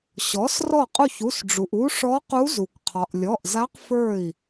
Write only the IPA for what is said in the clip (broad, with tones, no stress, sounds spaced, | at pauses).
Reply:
ɕ ɔ˩˥ s r ɔ˧˩ qʼ u˧˩ ç u˩˧˩ s ɖ͡ʐ u˩ ʔ u˧˥ ʂ ɔ˧˥ q u˧˥ z u˩ kʷ qʰ ɒ˩ ʔ lʲ ɔ˩˧˩ ʔ z a˧˥ q f ə˞˧˩ i̯